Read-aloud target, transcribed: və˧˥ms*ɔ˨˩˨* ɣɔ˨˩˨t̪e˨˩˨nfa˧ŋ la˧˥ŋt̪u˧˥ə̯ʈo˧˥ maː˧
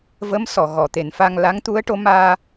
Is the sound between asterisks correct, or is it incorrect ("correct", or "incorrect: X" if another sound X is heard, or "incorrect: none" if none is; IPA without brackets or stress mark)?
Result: correct